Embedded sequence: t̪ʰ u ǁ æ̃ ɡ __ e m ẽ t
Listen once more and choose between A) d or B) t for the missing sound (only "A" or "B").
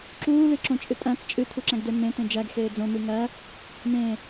A